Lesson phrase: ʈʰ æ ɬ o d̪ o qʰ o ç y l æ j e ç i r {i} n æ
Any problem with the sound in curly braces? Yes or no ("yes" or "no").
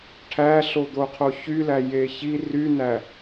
yes